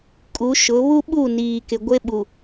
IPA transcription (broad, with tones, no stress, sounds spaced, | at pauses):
kʼ u˨˦ ʃ ʊ˨˦ β u˦ ɓ u˦˨ n iː˨ k ɪ˨ ɡʷ e˦ ɓ u˨